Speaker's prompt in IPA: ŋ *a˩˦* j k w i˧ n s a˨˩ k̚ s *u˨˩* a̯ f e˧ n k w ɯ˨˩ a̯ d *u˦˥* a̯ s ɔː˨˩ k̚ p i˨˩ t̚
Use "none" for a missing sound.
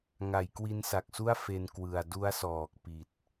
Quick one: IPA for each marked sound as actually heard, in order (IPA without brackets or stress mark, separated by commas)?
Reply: a˩˦, u˥˩, u˦˥